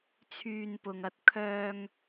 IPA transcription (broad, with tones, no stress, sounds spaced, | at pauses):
t͡sʰ yː˧ n p ʊ˨ ŋ ɐ˧ t̚ kʰ œː˧ ŋ